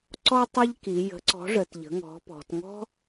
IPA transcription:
ǀ ɔ˥ tˤ ɐ˥ ʎ k i˩˧ j ə̤˨˥ ǀ ɔ̤˨˥ ʐ ə˩˧ t ʎ ə̤˨˥ ŋ ɔ̤˨˥ p ɔ̤˩˧ t ŋ ɔ̤˥

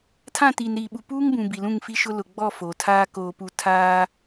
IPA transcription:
tʰ ã˦˨ t iː˨ n ɾ iː˨ ɓ u˨ p uː˦ ŋ b ũ˨ b i˨ l ũ˦˨ ŋ f i˦ ʃ ʊ˦ l ʊ˨ ɡ͡b ɔ˦˨ f oː˨ tʰ aː˦ k oː˨ p u˨ tʰ aː˦

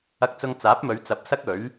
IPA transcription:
ɐ˧ k̚ t͡s ʊ˧ ŋ t͡s aː˨˥ p̚ m ɵ˨˧ ɥ t͡s ɐ˨˥ p̚ s ɐ˥ k̚ ɵ˨˥ ɥ

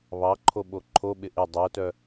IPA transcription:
β ɑ ǃʰ o ɓ o ǃʰ o ɓ ɪ ʔ ɪ dˤ o t œ

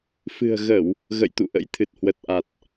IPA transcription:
f ɨ̤˨˩ ə̯ ɣ ə˧˩˨ w | ɣ ə̰˧˨ j t̪ ṵ˧˨ ʔ ə̰˧˥ j t̪ʰ ɨ˨˩ t̚ h w ə˨˩ t̚ ʔ a˨˩ t̚

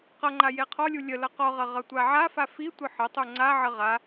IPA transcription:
q ʌ ŋ͡ǃ a j e qʰ ɔ lʲ u lʲ ə l ʌ q ɔ ʁ ʌ ʁ ʌ tʷ a ʕ a f a f i tʷ ə ħ ə tˤ u ŋ͡ǀ a ʕ ə ʁ a

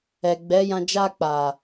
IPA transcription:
ɛ˨ ɡ͡b ɛ˨˦ j ã˧ d͡ʒ a˧ k͡p a˨

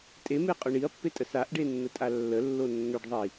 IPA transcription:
tʼ e m e qʼ ʏ ɳ i ɐ̯ pː e tʼ ə s a ʔ ɖ e nː ə tʼ a lː ə lː o nː ʏ ɖ ðˤ i

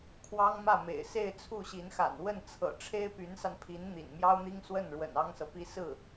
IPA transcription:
kʰ w ɑ˥ ŋ m ä˥˩ m ḛ˨˩ ɪ̯ s e˥˧ ɪ̯ t͡sʰ u˥˩ ɕ i˧˥ n x a̰˨˩ n w ə˥˩ n t͡sʰ ɤ̰˨˩ ʈ͡ʂʰ e˥ ɪ̯ p y˧˥ n s a˧ n pʰ i˧˥ n n̪ ḭ˨˩ n m j ɑ˥ ʊ̯ n̪ i˥ ŋ s w ə˥˩ n ɻ w ə̰˨˩ n ɑ˥ ŋ s ɤ˨ p i˥ s ɹ̩˥˩

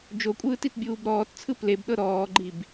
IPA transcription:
d͡ʒ o kʷʼ ɯː t i t bʲ uː b ɾ ɔː t t͡sʰ ɯ p l e b ɗ ɤ ɾ ɔː ɡ͡ǃ i b

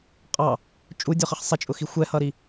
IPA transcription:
qʼ ɑ | t͡ʃʼ u dʲ ɔ χ ɪ χ sˤ ɪ t͡ʃʼ ʊ x i xʷ ɛ h ʌ ɾ i

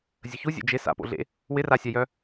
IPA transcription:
zʲ ə ç u zʲ ḛ d͡ʒ ɪ s a̰ p o̰ ɮ ḛ | w ɪ r a sʲ a j œ

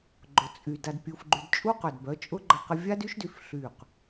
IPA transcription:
ɡ͡ǃ ʊ˨ t͡sʼ y˨ d a˧ d pʲ u˧ f ɡ͡ǃ y˧ d t͡ʃʼ u˦ q œ˨ d b œ˨˦ t͡ʃʼ ʊ˦ ɡ͡ǃ ə˧ q ə˧ vʲ a˦ d y˦ ʃ d y˧ f ɬ y˦˨ q

